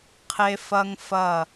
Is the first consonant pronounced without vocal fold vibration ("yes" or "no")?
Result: yes